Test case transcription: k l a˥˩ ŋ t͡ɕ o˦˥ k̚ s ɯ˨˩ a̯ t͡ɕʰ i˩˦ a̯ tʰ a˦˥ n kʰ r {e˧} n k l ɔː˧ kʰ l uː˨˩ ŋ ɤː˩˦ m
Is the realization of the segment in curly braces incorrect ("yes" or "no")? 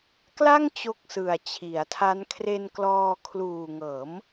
no